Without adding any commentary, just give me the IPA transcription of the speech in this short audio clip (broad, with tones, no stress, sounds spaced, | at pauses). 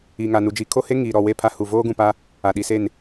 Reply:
iː˨ ŋ a˨ n u˨ d͡ʒ i˨ kʰ o˦ h e˦ ŋ iː˨ ɾ ɔ˨ w e˦˨ pʰ a˦ h u˨ v oː˦ ɡ ũ˨ p a˦ | a˨ ɗ i˨ s e˦˨ n